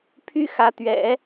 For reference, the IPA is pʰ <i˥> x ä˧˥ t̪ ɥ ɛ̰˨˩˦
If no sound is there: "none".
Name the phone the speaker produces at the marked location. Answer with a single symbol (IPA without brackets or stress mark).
y˥